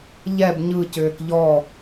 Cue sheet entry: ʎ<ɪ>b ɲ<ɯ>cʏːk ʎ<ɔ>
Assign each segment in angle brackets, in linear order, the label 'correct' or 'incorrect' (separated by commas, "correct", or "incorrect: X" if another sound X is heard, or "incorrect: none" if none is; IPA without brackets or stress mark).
incorrect: ɛ, correct, correct